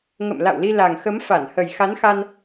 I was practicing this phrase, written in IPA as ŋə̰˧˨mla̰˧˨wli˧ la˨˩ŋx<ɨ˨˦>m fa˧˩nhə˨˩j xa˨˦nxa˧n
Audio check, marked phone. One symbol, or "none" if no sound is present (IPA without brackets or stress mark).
ə˨˦